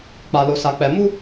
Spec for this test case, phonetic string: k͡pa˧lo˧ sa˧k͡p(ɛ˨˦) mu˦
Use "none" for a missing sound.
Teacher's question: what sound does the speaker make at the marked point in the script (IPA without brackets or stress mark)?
ɛ˧